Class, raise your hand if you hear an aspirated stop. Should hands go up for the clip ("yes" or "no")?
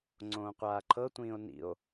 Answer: yes